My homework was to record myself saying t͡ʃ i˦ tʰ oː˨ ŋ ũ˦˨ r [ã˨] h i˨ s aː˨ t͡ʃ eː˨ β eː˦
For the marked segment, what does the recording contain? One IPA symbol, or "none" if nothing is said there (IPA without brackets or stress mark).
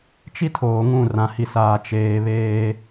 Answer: ã˨